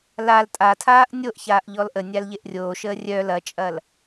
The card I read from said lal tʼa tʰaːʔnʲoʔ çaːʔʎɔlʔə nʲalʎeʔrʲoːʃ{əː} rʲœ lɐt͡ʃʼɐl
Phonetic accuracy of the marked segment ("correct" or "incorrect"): correct